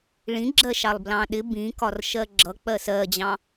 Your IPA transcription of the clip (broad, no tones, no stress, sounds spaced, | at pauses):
ɭ ĩ ɡ͡ǁ ɜ ʃ ɑ lˠ b l ɑ̃ ɗ ɪ b ĩ k ɒ r ʃ ɜ ɡ͡ǁ ʌ k͡p ɜ s ɜ d͡ʑ ɑ̃